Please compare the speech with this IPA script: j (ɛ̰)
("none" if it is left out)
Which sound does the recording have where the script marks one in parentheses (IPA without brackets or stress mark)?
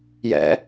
ɛ̰